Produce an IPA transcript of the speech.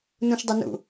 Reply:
nũʃdˤɘnṵ

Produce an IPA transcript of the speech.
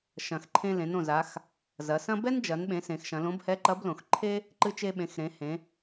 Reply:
ʃɐ̃˩x ǃʰẽ˧ lẽ˩˧n õ˩za˩˧x | zɐ˩˧sɐ̃˥ bɛ˥nd͡ʒɐ˩˧nɓẽ˩˧ sẽ˩˧xʃɐ̃˩˧lõ˧˥b hɛ˧˥ǃɐ˧˥blõ˩xǃʰe˥ | ǃɨ˧ t͡ʃe˧ɓẽ˩˧xɾẽ˩˧ hẽ˩˧

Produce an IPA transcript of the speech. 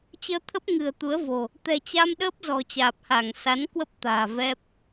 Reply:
t͡ɕəː˧t̪ʰə˦˥p̚ ŋɨ̤˨˩ə̯t̪u˨˦ə̯vo̤˨˩ | t̪ɛ̤˨˩t͡ɕa˧mɗəː˦˥p̚ zɔ̤˨˩t͡ɕaː˨˩p̚ha˧˩ŋ sa˨˦nkwə˦˥p̚ t̪a̤ː˨˩vɛ˦˥p̚

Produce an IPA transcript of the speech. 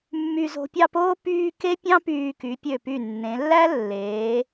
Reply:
mːy˧zo̤˧pʲɑ˥˧poː˥ pyː˧ ke˥pʲɑ̃˥pyː˧ky˩˧ pʲø˧˩py˧˩ nːẽ˩˧lːæ˥ lːeː˩˧

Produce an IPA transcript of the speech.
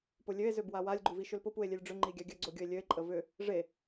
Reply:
pʊlʲøe̯ zøbwawalʲ ɡ͡ǃuviʃʏlpʊ pue̯lʲelʲɖ͡ʐʏ ŋ͡ǃiɡʲaɡʲə ɡ͡ǀoɡʲʊe̯lʲøe̯ ǃʼəvʏ | ʐe

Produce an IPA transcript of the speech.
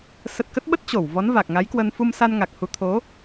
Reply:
sə˨˩t̚ kə˦˥t̚ɓə˦˥t̚ t͡ɕo˧˩w vɔ˨˦nva˨˩k̚ŋa˨˦jkwə˧n fu˧msa˧n ŋa˨˩k̚hu˨˦ t̪ʰo˨˦

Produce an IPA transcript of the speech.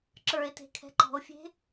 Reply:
ǁə˞e̯te̤ kʰɛ̤ǃɔ̤o̯fʲe̤

